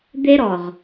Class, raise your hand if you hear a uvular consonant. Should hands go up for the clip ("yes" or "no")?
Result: yes